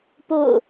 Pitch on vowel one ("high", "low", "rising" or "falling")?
falling